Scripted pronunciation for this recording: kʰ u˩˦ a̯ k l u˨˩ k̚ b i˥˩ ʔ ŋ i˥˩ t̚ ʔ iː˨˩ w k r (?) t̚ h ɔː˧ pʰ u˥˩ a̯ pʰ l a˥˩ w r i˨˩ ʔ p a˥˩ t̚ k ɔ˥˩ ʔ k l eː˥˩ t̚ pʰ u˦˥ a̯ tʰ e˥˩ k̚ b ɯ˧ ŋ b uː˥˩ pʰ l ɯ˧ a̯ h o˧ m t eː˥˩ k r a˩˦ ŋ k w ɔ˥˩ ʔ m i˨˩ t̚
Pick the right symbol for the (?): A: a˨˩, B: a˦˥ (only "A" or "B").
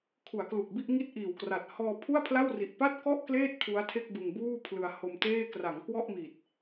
A